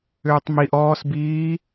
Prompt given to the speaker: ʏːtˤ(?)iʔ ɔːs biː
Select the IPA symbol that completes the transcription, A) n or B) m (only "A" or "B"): B